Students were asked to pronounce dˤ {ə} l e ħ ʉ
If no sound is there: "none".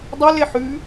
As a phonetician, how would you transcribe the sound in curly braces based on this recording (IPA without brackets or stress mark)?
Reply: ɵ